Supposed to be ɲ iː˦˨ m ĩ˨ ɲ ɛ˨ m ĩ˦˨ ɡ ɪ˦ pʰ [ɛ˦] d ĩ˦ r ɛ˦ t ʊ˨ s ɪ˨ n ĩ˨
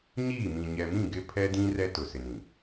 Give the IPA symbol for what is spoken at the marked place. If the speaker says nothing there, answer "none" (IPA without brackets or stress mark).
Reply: ɛ˦